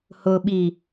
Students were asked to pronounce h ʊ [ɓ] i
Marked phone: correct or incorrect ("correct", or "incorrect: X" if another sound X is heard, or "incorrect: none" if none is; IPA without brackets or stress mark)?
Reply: correct